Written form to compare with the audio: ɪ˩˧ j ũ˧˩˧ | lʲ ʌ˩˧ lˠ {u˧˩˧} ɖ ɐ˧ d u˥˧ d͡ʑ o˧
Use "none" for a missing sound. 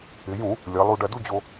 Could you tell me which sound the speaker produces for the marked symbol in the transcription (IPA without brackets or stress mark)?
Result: u˧